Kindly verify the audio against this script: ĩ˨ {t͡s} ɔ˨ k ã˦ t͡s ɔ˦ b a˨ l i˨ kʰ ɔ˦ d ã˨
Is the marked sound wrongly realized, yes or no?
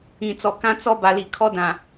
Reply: no